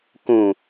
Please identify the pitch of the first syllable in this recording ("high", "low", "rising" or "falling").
low